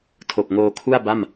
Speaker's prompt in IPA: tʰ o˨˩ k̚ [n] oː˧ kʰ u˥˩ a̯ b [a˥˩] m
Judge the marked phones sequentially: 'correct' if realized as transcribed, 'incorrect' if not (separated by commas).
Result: incorrect, correct